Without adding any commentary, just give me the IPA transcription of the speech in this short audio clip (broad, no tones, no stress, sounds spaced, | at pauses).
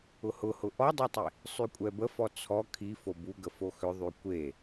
ʊ h ʊ h ʊ ʔ ɔ dˤ e tˤ i | sˤ y kʷʼ ɛ b ə f ɔ t͡sʰ ɔ kʰ i f o b u ɡ ə f o x ʏ ðˤ y kʷ e